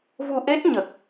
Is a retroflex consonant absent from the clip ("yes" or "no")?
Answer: yes